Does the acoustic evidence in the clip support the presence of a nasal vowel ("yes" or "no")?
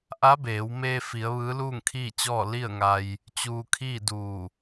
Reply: no